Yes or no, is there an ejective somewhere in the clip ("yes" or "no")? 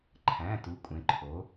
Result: yes